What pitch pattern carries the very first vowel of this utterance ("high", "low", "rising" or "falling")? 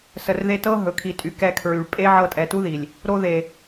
low